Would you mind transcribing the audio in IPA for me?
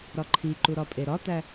ɾ ɒ ǃʰ i ǃ u ɾ ɒ pʼ e ɾ ɒ t̪ æ

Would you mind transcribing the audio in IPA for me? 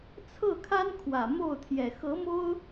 t͡sʰ ɤ˥˩ kʰ a˥ n kʰ w ä˨˩ m o˥˩ ʊ̯ t̪ʰ j ɛ˨˩ x ɤ˧˥ m o˥ ʊ̯

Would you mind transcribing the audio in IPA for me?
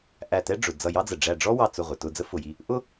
ʔ æ˧˩ t ɛ˥ ɖ͡ʐ ʊ˩ d͡z ʌ˧˩ j ɑ˥ d͡z ə˩ ɖ͡ʐ æ˧˩ ɖ͡ʐ ɔ˥ w ɑ˧˩ t͡s ʊ˧˩ ʁʷ ɪ˩ t ʊ˧˩ d͡z ə˥ f ʊ˩ j i˧˩ | ʔ ʊ˥

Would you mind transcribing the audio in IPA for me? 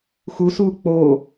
x u s uː k͡p oː

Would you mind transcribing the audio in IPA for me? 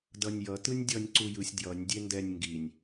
d ʌ nʲ j ʌ t ɯ nʲ dʲ ʌ nʲ ǀ u j ɯ sʲ d j ʌ nʲ dʲ e n d ɛ nʲ ŋ ɡ i nʲ

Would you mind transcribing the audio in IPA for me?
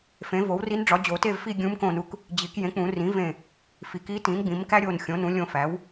f ẽ˩˥ v o˩˥ w r i˧˥ n ɖ͡ʐ ɒ˩˥ d͡ʑ o˨˩˦ t e˦˨ v f i˦˨ ɡʲ ũ˧˥ m k õ˦˨ n u˧˥ k | d͡ʑ i˨˩˦ k j ẽ˩˥ k͡p ũ˨˩˦ r ĩ˩˥ v ẽ˦˨ | f i˨˩˦ k i˧˥ t ĩ˩˥ n ɡ͡b ĩ˩˥ m k æ˥ ɾʲ o˦˨ n xʲ õ˩˥ n ũ˩˥ lʲ õ˦˨ f æ˩˥ w

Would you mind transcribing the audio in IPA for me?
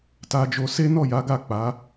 t a˧ d͡ʒ o˧ s e˦ n ɔ˦˨ j a˨˦ ɡ a˦˨ k͡p a˨˦

